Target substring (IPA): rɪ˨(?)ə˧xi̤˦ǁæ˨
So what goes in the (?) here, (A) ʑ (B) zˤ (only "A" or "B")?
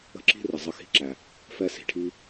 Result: B